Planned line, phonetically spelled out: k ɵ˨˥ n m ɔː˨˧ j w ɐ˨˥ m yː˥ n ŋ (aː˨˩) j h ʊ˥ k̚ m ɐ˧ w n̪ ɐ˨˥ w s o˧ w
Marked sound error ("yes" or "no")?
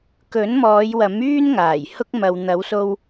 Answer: no